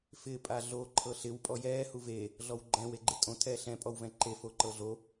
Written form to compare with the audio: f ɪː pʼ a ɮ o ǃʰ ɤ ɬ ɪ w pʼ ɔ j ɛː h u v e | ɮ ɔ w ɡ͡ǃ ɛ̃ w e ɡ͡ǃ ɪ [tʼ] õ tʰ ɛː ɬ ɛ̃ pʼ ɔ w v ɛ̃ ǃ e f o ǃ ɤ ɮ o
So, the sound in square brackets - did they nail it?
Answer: yes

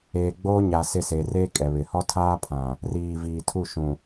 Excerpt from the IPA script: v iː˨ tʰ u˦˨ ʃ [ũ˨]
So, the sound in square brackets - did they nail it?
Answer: yes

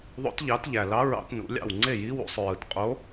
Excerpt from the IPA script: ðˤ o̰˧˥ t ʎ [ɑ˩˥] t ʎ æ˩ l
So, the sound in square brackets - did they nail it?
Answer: yes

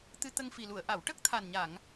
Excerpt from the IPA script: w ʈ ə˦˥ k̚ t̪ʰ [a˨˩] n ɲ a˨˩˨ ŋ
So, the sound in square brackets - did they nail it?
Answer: yes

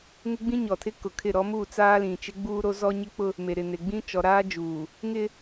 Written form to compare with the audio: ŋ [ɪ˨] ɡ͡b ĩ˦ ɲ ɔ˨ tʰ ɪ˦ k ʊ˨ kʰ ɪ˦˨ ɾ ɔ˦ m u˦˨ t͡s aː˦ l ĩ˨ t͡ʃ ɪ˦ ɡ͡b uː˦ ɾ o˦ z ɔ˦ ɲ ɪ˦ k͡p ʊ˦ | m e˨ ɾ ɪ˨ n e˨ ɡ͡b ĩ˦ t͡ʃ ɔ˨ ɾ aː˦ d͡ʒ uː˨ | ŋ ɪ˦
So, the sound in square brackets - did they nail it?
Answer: no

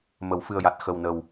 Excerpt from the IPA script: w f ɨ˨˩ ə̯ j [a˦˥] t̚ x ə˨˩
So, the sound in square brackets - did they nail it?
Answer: no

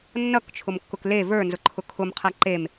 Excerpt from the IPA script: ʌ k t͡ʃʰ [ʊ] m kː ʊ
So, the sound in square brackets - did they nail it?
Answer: yes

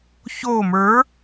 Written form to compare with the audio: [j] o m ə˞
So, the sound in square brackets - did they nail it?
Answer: no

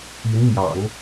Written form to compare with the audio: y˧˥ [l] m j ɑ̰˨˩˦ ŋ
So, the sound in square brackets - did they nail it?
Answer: no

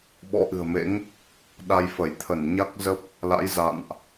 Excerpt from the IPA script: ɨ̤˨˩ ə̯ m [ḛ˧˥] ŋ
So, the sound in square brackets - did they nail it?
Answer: yes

